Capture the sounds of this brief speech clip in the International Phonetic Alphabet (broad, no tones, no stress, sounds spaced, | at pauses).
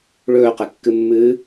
ɭ ɵː q e kː ɨ mː ɨː